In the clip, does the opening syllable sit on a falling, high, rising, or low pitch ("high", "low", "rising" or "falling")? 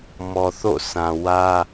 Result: low